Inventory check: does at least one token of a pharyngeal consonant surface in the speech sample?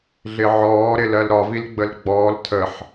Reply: yes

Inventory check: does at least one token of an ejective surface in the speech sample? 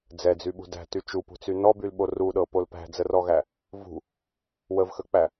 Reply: no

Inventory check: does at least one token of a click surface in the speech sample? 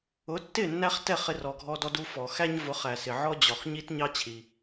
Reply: no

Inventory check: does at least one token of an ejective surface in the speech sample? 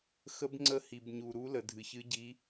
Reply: no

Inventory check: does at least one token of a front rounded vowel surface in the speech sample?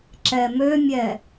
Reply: yes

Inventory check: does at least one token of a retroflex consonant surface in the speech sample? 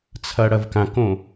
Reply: yes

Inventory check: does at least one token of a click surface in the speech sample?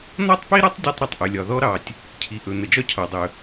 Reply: no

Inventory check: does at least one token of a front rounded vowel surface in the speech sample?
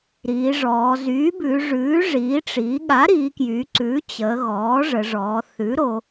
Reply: yes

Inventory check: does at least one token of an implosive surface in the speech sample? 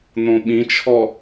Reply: yes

